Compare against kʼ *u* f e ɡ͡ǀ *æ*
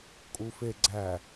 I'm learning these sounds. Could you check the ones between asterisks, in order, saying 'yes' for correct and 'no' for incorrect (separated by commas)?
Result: yes, yes